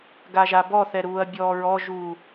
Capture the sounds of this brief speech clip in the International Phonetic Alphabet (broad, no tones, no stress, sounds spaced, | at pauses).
ɡ a ʒ a b ɔ θ ɛ ɾ uː ɐ̯ bʲ ɔː ɹ ɔ ʒ uː